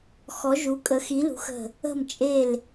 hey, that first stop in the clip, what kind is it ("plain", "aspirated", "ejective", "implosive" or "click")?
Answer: ejective